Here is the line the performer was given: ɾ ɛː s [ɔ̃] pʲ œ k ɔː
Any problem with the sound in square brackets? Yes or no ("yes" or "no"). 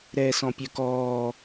no